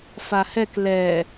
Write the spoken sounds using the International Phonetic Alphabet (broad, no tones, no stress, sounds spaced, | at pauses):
f a h ɛ k l ɛ